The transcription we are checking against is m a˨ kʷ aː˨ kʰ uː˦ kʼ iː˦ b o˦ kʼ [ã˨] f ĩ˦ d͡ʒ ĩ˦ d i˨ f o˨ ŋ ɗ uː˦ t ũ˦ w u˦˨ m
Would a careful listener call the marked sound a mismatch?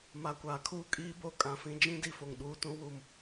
no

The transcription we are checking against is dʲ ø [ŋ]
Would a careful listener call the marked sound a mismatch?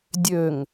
no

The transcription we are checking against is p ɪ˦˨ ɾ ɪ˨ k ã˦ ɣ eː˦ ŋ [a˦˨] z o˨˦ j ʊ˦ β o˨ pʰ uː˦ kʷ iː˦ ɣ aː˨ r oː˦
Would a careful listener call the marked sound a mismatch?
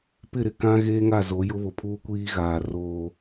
no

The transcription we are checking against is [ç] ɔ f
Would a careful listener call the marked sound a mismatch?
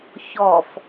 no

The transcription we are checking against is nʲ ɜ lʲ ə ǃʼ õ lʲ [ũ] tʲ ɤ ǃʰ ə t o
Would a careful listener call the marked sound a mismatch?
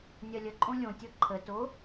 yes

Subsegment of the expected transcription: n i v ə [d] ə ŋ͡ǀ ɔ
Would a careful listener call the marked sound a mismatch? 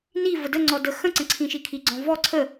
no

